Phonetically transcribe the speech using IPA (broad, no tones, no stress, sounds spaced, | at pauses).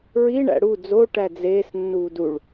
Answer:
ɹ i ɳ æ̰ ɽ u d͡z o ʈ æ d͡z eː s nː uː d u ɭ